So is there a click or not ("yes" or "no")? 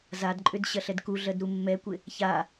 yes